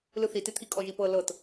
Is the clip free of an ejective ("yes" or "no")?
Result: no